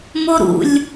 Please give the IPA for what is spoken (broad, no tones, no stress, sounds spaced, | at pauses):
m o ɾ ṵ lʲ